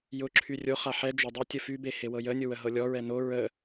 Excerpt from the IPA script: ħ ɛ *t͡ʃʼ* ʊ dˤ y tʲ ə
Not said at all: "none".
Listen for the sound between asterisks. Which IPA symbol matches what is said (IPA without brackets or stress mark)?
d͡ʒ